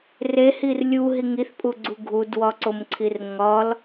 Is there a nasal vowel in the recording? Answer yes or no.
no